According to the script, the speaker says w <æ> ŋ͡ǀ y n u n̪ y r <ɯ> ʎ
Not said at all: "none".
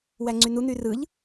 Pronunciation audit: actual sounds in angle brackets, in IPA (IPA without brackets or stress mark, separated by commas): æ, ɯ